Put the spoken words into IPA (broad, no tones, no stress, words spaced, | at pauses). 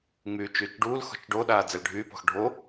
ŋ͡myːt͡ʃyːt͡ʃɖuːlxɔ̤t͡ʃ ɖoɗaː d͡zɛlɖʱyːpɔ̤x ɖʱo